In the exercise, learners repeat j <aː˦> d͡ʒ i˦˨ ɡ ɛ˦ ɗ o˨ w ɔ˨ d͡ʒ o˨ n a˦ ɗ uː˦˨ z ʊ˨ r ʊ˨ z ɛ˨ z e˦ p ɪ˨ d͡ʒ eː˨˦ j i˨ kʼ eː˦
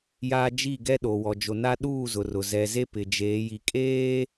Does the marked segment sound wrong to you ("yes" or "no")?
no